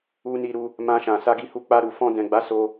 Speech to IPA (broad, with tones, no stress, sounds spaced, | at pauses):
u˧ n i˧ ɾ u˧ | m ã˧ ʃ ã˨ s a˧ ɡ i˧ h u˧ k͡p a˧ ɾ u˨ f ɔ̃˧ d ɛ̃˨ ɡ͡b a˨˦ s o˧